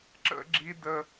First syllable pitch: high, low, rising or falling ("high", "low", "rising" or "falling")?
high